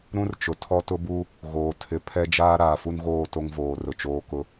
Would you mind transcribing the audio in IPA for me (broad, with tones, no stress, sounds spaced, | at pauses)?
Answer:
ɾ ũ˦ r t͡ʃ ʊ˨ tʰ ɔ˦ t ʊ˦ b u˦ | ɣ oː˨ tʰ ɪ˨ pʰ ɛ˦ d͡ʒ aː˦ ɾ aː˨ f u˦ n ɣ oː˦˨ t o˦ ŋ v oː˨ r ʊ˨ t͡ʃ oː˦ k ʊ˦